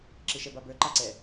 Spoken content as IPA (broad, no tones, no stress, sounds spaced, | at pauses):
ǁ ɪ ʃ ɛ b a b ə˞ ǃ a ǀ ɛ